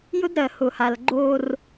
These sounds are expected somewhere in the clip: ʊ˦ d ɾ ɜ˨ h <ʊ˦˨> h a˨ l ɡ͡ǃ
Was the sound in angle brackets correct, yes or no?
no